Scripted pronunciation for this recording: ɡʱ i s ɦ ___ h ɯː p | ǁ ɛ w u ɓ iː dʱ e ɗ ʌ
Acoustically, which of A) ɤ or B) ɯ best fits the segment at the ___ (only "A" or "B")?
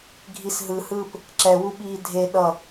B